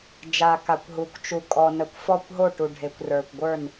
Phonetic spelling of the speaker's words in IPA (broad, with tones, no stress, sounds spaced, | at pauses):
d͡ʒ a˩ k a˩ kʷ ɦ u˩ kʷ t͡ʃ u˩ kʼ ɔ˩ n ə˩ kʷ f ɔ˧˩ kʷ ɦ o˧˩ ʈ u˩ ɖʱ e˩ kʷ r ə˞˩ kʷ ɡʷ ə˞˧˩ n